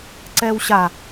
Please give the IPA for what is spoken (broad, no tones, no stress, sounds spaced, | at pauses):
ǀ ɛː w ɕ a